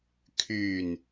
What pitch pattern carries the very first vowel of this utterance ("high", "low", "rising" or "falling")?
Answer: low